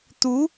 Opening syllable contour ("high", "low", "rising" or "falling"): rising